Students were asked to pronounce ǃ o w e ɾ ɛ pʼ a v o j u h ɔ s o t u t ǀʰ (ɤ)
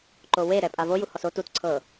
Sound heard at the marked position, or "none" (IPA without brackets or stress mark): ɤ